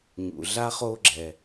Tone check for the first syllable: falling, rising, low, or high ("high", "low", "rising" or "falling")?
low